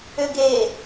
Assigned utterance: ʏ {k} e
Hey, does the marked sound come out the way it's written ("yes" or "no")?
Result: no